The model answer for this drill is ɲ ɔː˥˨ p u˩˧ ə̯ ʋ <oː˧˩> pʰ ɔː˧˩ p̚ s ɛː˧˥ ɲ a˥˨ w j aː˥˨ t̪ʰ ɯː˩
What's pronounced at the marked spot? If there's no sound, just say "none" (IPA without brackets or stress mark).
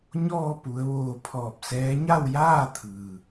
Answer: oː˧˩